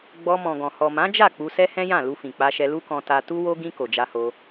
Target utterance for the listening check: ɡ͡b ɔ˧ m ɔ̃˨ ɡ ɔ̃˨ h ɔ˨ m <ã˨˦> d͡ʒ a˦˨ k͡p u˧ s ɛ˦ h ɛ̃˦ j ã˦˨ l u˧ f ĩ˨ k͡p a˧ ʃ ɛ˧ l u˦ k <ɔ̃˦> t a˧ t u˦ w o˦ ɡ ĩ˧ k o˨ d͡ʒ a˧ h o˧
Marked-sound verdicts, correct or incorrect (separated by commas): correct, incorrect